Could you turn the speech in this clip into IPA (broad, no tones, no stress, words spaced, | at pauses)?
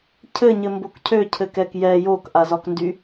cʰɘɲɘmbok cʰøcʰɘkɛk jɛ jokʔazɒkndy